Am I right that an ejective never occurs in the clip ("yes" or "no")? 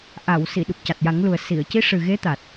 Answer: yes